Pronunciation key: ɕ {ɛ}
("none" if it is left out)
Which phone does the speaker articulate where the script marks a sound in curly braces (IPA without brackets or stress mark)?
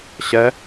ɛ